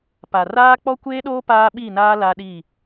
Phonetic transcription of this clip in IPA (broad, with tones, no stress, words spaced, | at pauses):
pa˨ raː˦ k͡pɔ˦kʷeː˦ɗoː˦ paː˦ɓi˦˨naː˦ la˦ɗi˦˨